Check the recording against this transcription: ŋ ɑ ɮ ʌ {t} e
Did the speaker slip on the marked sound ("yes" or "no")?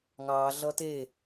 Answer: no